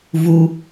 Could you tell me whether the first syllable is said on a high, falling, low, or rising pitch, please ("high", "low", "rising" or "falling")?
low